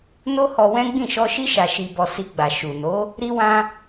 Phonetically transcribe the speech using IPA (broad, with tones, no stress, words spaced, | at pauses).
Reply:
no˦hɔ˧wɛ̃˦ ɡ͡bĩ˦˨ʃɔ˧ʃi˦ ʃa˧ʃi˧bɔ˧ si˧ɡ͡ba˨ ʃu˨ no˨˦ | ɾi˦wã˦